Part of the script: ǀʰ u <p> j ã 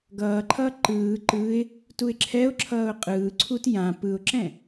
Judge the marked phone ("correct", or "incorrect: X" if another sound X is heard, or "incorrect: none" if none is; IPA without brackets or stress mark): incorrect: t